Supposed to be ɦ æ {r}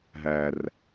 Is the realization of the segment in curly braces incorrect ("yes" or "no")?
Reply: no